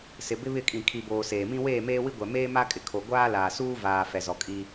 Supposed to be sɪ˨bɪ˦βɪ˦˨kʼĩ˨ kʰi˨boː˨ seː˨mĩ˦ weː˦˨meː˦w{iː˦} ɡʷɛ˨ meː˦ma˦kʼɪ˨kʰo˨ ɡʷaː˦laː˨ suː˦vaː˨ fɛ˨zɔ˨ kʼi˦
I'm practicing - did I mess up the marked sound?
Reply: yes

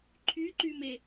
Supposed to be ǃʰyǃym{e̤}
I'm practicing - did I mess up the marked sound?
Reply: yes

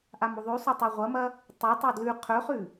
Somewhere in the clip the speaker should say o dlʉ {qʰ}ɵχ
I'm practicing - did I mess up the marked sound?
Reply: no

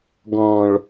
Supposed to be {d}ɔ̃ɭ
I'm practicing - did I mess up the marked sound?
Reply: yes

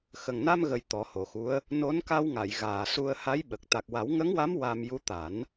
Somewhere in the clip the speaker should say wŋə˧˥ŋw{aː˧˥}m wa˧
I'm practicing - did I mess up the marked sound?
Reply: yes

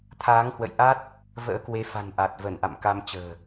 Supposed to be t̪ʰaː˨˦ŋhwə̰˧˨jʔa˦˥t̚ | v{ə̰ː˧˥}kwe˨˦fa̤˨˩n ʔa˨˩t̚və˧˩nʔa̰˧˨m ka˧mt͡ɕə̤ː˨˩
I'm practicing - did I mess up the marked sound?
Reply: no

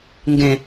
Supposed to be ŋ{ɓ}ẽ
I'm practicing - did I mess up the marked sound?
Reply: yes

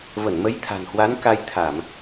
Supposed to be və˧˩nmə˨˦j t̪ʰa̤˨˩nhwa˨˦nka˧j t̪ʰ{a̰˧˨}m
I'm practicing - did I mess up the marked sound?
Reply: yes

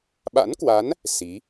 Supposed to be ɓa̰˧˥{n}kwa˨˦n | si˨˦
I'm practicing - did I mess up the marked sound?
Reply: no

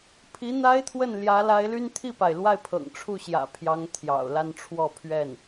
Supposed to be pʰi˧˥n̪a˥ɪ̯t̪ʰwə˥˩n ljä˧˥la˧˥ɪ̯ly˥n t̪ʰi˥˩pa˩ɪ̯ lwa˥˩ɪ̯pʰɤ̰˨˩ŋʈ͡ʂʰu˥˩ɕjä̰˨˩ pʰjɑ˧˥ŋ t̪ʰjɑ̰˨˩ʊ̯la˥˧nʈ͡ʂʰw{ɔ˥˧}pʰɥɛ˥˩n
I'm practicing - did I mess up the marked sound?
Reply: no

